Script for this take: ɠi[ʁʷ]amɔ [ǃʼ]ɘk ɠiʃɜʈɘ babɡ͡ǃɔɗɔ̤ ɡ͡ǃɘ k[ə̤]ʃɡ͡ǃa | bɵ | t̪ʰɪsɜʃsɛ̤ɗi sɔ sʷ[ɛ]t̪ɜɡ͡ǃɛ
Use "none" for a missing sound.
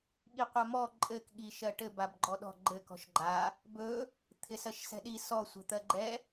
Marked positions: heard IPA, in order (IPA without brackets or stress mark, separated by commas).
qʷ, ǃʼ, ɔ̤, ɛ̤